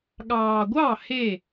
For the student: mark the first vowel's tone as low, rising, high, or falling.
low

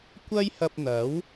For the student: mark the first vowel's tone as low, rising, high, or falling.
high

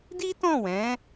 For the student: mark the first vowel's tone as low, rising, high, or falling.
high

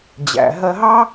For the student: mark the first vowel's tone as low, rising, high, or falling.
low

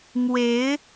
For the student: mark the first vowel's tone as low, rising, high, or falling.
rising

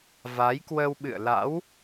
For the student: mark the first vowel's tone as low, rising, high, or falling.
rising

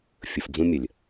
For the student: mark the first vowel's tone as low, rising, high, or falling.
low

